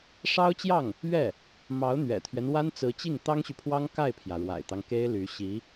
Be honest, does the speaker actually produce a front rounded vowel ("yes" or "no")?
yes